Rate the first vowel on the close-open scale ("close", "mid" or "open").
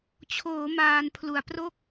mid